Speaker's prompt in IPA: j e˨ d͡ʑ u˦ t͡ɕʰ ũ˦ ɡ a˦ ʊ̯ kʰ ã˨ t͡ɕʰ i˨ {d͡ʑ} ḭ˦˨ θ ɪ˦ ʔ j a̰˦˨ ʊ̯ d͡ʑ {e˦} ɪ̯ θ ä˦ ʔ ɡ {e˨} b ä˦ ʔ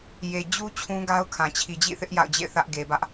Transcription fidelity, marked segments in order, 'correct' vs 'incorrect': correct, incorrect, correct

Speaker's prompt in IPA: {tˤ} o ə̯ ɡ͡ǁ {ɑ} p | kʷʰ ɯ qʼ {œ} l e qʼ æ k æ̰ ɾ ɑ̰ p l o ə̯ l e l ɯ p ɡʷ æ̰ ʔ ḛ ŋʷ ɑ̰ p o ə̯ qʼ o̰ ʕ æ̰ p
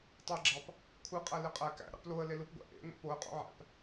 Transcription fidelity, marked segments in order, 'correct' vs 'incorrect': correct, correct, incorrect

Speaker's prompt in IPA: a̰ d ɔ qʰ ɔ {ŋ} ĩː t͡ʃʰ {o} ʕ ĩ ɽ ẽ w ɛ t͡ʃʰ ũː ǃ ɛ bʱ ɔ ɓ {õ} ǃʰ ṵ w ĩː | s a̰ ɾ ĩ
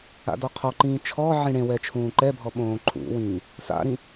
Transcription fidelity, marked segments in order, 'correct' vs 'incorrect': incorrect, incorrect, incorrect

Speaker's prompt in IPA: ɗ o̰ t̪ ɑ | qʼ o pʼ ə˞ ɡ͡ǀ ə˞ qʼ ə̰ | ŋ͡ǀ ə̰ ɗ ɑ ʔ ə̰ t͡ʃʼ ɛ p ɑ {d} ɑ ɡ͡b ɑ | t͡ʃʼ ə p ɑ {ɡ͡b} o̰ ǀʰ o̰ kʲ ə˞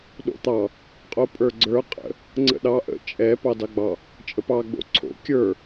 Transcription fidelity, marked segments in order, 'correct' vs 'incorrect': correct, correct

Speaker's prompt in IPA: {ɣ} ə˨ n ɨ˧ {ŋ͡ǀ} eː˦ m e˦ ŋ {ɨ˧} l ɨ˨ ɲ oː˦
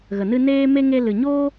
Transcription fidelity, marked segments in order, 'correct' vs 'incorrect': correct, incorrect, incorrect

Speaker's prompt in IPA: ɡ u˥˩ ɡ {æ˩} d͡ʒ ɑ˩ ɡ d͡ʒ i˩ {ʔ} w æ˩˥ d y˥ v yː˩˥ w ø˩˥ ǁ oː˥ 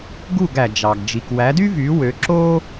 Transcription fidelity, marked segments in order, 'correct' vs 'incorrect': correct, incorrect

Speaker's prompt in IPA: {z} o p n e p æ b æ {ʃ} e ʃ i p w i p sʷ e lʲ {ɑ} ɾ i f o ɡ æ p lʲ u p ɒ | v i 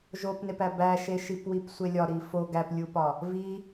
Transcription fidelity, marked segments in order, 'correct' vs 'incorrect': incorrect, correct, incorrect

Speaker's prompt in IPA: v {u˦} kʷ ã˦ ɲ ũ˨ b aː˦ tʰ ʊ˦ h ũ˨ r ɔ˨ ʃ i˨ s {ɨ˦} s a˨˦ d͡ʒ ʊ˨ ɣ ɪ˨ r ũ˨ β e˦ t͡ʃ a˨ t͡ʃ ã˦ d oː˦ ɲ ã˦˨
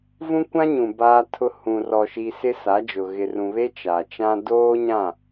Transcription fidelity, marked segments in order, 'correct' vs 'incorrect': incorrect, incorrect

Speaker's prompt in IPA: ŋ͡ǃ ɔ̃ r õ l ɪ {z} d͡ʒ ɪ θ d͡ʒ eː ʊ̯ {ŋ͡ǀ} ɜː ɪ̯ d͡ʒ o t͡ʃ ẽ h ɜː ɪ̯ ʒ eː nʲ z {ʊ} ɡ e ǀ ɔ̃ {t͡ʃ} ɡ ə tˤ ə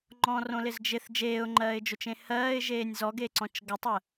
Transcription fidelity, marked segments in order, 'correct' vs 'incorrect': correct, incorrect, incorrect, correct

